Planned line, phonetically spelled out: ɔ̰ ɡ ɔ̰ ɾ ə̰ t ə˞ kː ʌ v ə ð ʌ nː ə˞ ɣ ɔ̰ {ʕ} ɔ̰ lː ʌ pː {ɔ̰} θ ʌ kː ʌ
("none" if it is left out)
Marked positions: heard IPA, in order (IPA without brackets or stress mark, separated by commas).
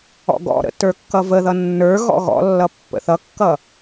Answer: ɣ, ə̰